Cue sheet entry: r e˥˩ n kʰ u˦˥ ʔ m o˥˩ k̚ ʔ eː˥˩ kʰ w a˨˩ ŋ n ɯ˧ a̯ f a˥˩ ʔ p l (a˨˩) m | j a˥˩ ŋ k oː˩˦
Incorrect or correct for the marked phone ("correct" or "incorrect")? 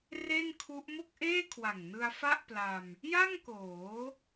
incorrect